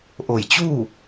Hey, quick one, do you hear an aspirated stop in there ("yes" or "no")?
no